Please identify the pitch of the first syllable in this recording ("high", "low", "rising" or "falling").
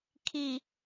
low